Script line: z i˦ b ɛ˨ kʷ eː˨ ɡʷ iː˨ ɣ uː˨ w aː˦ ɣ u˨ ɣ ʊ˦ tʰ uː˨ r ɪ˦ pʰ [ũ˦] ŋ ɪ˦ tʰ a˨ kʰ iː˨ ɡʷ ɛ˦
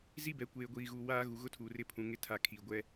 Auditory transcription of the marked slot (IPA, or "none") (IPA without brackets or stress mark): ũ˨